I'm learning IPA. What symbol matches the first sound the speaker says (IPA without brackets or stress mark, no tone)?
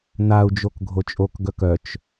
n̪